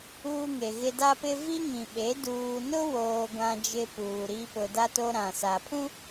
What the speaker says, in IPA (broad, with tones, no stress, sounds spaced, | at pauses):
uː˦ ŋ e˨ ɣ ɪ˦ d a˦ p ɪ˦ v i˦ ŋ ĩ˨ ɓ e˨˦ d uː˨ n ʊ˦ w oː˨ ɡʷ ã˦ d͡ʒ ɪ˦ p uː˨ ɾ i˦ p ʊ˨ d a˦ t o˦ ɾ ã˨ s a˨ pʰ ũ˦